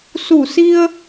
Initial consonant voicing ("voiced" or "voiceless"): voiceless